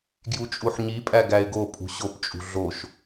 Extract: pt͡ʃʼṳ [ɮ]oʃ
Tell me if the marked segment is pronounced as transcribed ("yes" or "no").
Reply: yes